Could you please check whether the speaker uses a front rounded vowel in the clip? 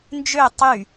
yes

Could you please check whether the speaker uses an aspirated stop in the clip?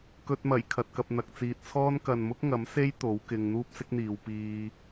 yes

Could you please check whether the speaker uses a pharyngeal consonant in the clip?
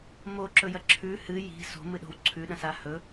no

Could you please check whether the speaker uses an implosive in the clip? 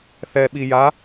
yes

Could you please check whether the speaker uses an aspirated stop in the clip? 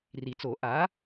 no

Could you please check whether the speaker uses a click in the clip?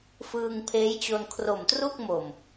no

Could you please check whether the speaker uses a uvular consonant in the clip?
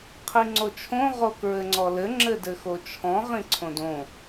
yes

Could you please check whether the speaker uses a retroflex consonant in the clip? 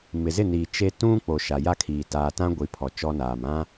no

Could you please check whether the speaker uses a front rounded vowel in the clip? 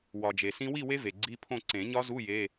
no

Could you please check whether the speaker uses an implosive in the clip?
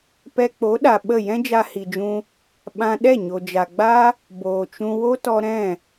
yes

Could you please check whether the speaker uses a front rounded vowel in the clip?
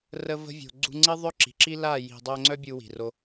yes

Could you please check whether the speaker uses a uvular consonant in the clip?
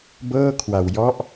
no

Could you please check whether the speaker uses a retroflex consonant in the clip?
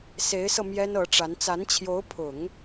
yes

